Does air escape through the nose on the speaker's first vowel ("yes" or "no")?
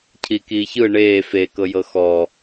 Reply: no